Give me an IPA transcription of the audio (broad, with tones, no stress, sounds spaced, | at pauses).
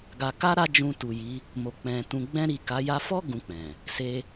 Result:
ɡ a˨ k a˧ ɾ a˦ d͡ʒ ũ˧ t u˨ j i˨˦ | m o˨ k͡p ɛ̃˨ t ũ˨ ɡ͡b ɛ̃˧ ɾ i˨ k a˨˦ j a˧ f ɔ˦ ɡ ũ˧ k͡p ɛ̃˨ | s e˧